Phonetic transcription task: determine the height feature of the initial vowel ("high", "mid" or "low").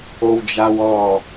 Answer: mid